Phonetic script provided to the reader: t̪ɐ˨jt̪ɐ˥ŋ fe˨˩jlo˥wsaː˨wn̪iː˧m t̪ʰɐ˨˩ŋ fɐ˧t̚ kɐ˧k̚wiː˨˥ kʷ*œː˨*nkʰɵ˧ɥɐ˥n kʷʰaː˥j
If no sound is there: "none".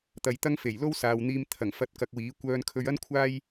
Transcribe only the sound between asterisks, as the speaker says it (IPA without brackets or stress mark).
œː˧